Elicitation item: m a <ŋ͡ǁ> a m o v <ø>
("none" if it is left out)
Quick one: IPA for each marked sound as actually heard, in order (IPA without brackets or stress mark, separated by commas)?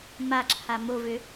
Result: ǁʰ, ø